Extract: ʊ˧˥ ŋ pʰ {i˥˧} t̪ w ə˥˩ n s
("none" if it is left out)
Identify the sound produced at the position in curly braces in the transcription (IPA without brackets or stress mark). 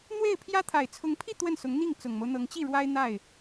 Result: i˥˧